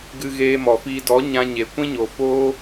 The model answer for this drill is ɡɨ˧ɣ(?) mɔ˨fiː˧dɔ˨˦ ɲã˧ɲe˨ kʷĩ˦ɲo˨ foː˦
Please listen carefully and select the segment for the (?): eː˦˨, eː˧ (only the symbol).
eː˧